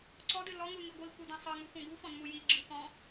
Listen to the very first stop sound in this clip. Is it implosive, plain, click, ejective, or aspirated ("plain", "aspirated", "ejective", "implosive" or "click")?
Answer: click